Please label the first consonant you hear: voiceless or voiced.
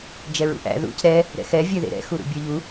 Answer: voiced